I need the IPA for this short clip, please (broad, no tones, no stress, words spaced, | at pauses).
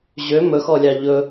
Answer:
ʑø mɵxɔlʲɑ ʎɵ